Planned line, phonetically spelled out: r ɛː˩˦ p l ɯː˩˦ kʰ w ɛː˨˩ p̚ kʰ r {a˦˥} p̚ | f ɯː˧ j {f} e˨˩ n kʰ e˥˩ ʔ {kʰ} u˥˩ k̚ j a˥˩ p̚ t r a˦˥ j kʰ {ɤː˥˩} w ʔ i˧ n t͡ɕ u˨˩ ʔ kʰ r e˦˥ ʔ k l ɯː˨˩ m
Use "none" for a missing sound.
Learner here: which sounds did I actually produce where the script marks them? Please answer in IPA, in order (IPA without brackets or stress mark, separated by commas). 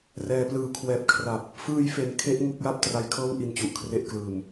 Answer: a˨˩, f, ŋ, ɤː˥˩